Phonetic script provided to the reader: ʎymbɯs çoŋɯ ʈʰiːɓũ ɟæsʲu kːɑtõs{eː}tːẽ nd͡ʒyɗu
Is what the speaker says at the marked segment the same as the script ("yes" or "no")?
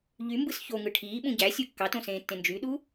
no